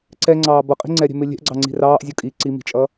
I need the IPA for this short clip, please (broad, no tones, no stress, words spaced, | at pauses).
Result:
ǀɛŋ͡ǀɑː bʌqʼi̤ ŋ͡ǀɛɾʲɛ̤mɪ lʲɛ̤ʔɡ͡ǀɑŋ͡ǀi̤ rɑːʔzʲɔ kʼi ǀimi̤t͡ʃʼʌː